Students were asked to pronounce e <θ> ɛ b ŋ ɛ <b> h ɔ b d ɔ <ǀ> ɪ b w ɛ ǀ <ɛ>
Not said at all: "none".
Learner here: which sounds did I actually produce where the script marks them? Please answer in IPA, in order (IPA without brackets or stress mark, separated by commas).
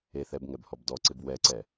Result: θ, b, ǀ, ɛ